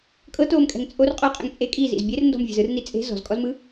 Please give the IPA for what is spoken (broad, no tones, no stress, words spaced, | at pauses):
kʼɤtoːmkʼɛ̤ŋ t͡sʼor qʼoqʼɛ̰ŋ t͡sʼe kʼizḭz bʲerndɔ̤mvʲe̤z ɯrni t͡sʼe̤ zɔ̤zkʼɔzmɯ